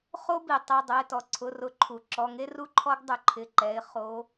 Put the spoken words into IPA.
χ o˥ b i˩ tˤ ɛ˩˧˩ dˤ ʊ˩˧˩ ɪ̯ t ɔ˩ ǀʰ ʊ˩˧˩ r ʊ˨˦ ǃʰ u˩ ǁ ɔ˩˧˩ ŋ e˥ r u˥ ǃʰ ɔ˥ ɡ dˤ ʊ˨˦ ǃʰ ɪ˩˧˩ ǃ ɛ˩˧˩ ɪ̯ χ o˨˦

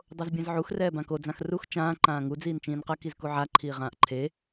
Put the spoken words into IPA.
dˤ o z bʲ ɛ̃ z ʕ u x r ɛː b ã k o d͡z ã x r u x t͡ʃ ãː ǃ ãː ŋ u d͡z iː n t͡ʃ ĩː n q ʌ k i z k u ʕ a ǃʰ iː ʁ ãː ʔ ǃʰ e

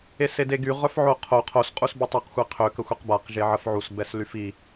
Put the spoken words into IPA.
e s e d e ɡ y ʁ œ f ʕ o qʰ o qʰ o s qʼ u s b y tˤ y q xʷ e qʰ ø k ə xʷ e q b a q ʒ e ʕ ə f ʕ u s b ɛ s l y f i

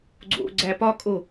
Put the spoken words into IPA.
ɡ͡ǀ o̰ ɡ͡ǀ æ p ɒ kʼ o

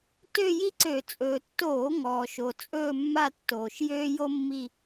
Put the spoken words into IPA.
t ø˥˧ j i˥ ǀ ø˧˩˧ t͡sʼ ɵː˩ tː oː˧˩˧ ŋ ɔː˩ ʃ o˩ t͡sʼ ɵː˥˧ mː a˥˧ tː oː˩ ʃ j øː˥ j o˥ mː i˥˧

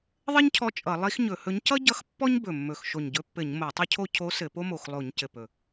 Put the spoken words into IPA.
ðˤ ɘ˥ ɲ cʰ ɔ˧˥ t͡ʃʼ ʌ˧˩˧ lˠ i˧˥ x ɲ ɵ˧˩˧ h ɵ˧˥ ɲ c ʌ˥ ɟ ʌ˧˥ x pː ɔ˥ ɲ b ɵ˨˩ mː ɵ˨˩ x ʃ o˨˩ ɲ ɟ ɵ˧˥ pː ɘ˧˩˧ ɲ m o˧˩˧ tˤ ɵ˥ cʰ o˥ cʰ o˧˥ s ɘ˧˩˧ p o˥ m o˨˩ x lˠ o˧˩˧ ɲ c ɘ˨˩ p ɵ˨˩

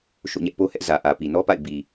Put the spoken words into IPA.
ʃ o̰˦˨ ɲ ɛ˦ ʔ p o˦ h ɛ˦ ʔ z ä˨ ʔ ä˨ p i˨ n ɔ˦ p a̰˦˨ ɪ̯ b i˨

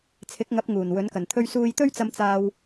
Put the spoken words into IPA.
t͡sʰ ɪ˨˥ k̚ ŋ ɐ˨˥ p̚ ŋ uː˨˩ n w ɵ˨˥ n k ɐ˨˩ n t̪ʰ ɵ˥ ɥ s uː˥ j t̪ ɵ˥ ɥ t͡s ɐ˧ m t͡s aː˧ w

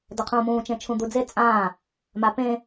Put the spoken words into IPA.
d ɐ qʰ ũː m ũː t͡ʃ ẽ t͡ʃʰ ũ d̪ u d͡z e t͡sʼ ãː | m a p ẽ

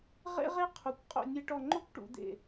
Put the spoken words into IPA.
ʁ ḛ˥ ʁ e˥ qʰ u˧˩ kʷ qʼ o̰˥˧ nʲ e˥ ʈ ɔ˥˧ ŋ͡ǃ o˥ kʷ ʈ ṵ˩˧ d̪ ḛ˧˩

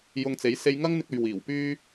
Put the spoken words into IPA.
j ʊ˨ ŋ t͡s e˨˥ j s e˧ j ŋ ɐ˥ ŋ n̪ ɪ˧ k̚ ɵ˨ ɥ w iː˨˩ w p yː˧

